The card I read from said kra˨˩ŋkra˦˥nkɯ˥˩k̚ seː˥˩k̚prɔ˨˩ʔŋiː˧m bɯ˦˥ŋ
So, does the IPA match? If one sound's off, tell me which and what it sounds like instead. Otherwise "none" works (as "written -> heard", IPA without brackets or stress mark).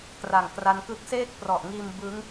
none